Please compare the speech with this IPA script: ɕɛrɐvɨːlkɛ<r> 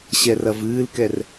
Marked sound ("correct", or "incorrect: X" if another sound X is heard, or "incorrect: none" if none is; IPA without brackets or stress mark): correct